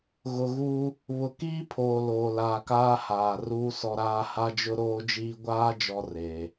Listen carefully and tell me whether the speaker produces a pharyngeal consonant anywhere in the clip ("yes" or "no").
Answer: no